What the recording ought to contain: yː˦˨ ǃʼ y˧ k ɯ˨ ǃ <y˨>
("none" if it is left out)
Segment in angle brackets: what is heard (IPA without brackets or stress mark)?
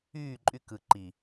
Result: i˨